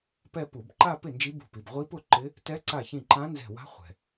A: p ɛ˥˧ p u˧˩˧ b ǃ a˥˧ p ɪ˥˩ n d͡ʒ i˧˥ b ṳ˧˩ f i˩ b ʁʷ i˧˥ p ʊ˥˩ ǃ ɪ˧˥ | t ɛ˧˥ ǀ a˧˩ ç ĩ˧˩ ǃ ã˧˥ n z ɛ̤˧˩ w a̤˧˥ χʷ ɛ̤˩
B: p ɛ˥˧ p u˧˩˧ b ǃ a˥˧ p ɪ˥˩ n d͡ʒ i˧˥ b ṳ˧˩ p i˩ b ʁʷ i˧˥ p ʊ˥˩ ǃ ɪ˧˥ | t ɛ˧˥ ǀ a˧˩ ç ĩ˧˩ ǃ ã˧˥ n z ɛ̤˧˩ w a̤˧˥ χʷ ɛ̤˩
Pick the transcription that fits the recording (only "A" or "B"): B